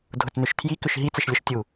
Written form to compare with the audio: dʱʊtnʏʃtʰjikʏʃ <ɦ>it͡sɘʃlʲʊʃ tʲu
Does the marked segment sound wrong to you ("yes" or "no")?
no